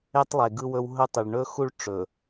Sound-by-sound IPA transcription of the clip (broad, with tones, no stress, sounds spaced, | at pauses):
e˦ tˤ lˠ e˨ ɡ ɯ˦ w ɵ˦ w ɦ ɵ˦ tˤ ɨ˨ ɭ ɳ ɵ˦ x u˦ ɭ ʈ͡ʂ ɵ˨